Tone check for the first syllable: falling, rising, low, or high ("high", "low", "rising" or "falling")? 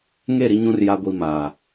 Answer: falling